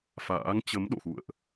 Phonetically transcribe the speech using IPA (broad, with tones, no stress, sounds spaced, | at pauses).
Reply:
f a̰ː˧˥ ŋ t͡ɕ ə˨˦ m ɗ o̰˧˨ x ṵ˧˨ ə̯ ʔ